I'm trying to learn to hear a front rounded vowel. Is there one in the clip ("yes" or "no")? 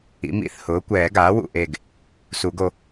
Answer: no